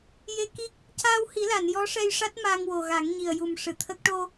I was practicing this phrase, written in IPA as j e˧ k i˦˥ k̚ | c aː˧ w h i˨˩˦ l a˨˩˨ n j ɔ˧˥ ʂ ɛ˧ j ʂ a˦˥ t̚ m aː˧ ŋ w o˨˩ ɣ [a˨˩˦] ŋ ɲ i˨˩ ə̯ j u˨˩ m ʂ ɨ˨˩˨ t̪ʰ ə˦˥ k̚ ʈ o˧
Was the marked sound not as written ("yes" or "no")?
no